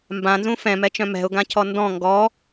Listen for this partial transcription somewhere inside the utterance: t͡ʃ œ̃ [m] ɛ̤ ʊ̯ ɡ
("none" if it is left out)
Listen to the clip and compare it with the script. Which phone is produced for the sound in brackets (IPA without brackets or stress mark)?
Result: m